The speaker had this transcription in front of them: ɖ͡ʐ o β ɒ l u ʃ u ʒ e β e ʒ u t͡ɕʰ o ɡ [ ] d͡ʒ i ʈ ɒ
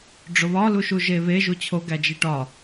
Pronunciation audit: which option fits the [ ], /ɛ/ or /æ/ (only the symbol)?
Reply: æ